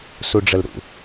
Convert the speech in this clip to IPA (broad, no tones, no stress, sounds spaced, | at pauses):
s u ɖ͡ʐ ə l ɾ ṵ